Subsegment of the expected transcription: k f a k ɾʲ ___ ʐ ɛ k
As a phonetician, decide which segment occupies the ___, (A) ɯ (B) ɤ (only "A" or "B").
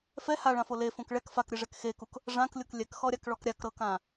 A